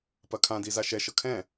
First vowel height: low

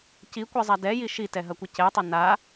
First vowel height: high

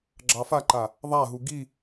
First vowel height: low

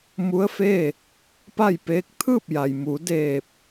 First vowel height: high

